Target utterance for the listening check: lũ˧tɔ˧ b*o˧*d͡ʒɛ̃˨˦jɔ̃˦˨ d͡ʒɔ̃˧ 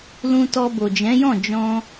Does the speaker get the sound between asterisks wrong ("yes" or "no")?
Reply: yes